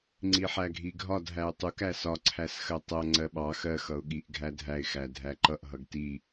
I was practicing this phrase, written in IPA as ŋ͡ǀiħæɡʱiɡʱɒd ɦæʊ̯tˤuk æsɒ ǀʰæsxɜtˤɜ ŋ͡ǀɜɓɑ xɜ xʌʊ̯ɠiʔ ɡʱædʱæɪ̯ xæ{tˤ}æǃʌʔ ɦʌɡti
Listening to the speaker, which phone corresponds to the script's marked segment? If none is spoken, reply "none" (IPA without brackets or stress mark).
dʱ